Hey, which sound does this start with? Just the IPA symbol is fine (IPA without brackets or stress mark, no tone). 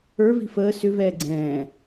ə˞